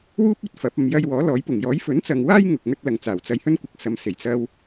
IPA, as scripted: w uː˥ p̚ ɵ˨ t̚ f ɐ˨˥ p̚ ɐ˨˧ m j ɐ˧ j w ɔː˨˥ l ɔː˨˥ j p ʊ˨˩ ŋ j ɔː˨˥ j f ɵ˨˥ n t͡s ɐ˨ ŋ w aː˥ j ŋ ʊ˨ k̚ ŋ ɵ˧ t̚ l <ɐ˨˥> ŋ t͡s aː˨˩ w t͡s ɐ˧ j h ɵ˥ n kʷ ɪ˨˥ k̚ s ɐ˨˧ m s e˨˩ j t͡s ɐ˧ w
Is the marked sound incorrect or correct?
incorrect